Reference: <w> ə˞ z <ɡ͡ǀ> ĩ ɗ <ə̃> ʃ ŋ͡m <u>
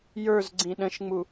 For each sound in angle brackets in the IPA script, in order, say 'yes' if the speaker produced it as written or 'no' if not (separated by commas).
no, yes, yes, yes